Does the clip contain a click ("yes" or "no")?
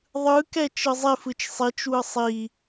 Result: no